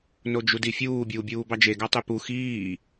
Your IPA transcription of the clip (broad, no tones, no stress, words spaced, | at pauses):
nod͡ʒudifʲuː bʲuːbʲuːbɑd͡ʒe ɡɑtˤypu xiː